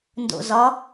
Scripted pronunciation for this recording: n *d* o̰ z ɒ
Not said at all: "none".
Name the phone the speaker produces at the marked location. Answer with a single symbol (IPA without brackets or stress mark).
d